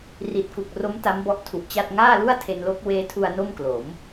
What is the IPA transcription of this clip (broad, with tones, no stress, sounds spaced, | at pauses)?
r i˨˩ t̚ k u˨˩ k̚ r o˦˥ m t a˦˥ m b ɔ˦˥ ʔ tʰ u˨˩ ʔ t͡ɕ a˥˩ t̚ ŋ aː˥˩ l u˥˩ a̯ tʰ e˧ n l o˦˥ k̚ w eː˦˥ tʰ u˧ a̯ n o˥˩ m k l o˩˦ m